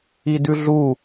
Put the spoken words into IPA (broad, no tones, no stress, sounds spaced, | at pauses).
i d ʉ ɮ u